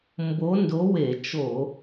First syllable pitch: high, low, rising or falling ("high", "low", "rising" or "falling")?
rising